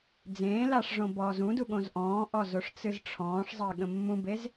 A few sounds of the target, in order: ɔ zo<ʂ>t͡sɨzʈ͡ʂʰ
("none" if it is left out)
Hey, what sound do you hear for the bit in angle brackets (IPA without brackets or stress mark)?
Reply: ʂ